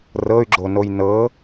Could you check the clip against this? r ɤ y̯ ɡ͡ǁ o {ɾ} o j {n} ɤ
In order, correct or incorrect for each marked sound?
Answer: incorrect: n, correct

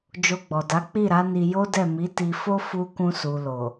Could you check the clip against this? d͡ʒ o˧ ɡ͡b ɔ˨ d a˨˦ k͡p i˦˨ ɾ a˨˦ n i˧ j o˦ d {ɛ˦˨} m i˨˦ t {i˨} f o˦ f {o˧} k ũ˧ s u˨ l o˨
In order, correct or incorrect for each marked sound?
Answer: correct, incorrect: i˧, incorrect: u˧

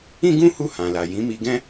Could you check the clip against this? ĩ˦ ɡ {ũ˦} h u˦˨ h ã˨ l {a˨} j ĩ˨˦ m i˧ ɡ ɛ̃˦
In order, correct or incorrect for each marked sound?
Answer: correct, correct

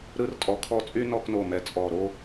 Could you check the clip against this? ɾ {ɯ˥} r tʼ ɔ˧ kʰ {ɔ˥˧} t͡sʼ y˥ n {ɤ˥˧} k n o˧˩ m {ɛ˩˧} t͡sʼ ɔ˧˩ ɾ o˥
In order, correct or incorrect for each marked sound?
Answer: correct, correct, incorrect: ɔ˥˧, correct

